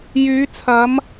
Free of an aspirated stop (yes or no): no